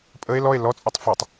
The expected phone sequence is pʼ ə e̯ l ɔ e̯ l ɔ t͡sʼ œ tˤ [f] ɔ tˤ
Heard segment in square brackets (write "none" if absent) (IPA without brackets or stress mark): f